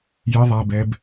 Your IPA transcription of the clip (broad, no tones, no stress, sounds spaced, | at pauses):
j ɪ ðˤ a b ɛ b